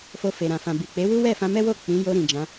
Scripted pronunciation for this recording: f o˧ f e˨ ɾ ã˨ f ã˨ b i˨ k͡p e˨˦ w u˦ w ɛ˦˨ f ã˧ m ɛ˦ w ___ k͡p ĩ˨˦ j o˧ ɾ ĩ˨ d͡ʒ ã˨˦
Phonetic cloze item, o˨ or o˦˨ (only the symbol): o˦˨